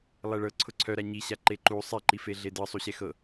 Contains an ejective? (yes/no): no